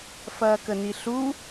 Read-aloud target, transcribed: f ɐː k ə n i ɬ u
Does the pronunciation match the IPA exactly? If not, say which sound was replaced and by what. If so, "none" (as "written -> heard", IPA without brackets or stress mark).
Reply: none